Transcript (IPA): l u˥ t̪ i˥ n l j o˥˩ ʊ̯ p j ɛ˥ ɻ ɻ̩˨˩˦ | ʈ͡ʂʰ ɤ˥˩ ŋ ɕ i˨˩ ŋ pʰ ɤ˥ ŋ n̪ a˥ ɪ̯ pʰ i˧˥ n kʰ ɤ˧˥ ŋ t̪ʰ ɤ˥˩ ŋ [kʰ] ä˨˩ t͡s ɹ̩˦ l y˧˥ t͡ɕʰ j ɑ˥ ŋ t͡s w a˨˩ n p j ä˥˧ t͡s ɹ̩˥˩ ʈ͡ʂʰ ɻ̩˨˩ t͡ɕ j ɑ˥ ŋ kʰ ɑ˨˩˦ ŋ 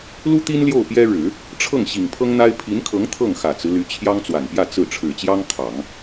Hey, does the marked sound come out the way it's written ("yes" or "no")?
no